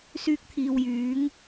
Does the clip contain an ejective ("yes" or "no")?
no